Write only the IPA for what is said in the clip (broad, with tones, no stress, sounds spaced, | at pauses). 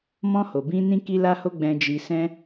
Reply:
m ɔ̃˧ h o˨ b ĩ˧ n ĩ˦ k i˦ l a˦ h o˦ ɡ͡b ɛ̃˧ d͡ʒ i˧ s ɛ̃˦